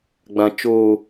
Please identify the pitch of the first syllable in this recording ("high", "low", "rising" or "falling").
low